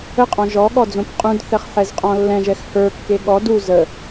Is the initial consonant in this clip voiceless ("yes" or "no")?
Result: yes